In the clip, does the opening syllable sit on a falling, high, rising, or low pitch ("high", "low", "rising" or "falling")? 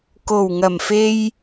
low